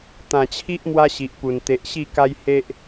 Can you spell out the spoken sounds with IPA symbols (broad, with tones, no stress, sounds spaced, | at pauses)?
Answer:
t̪ ã˨˩ t͡ɕʰ i˦ ʔ m w a˦ ɕ i˨ ʔ p u˨˩ n t̪ e˨ ʔ ɕ i˥˧ k a˦ j h e˦ ʔ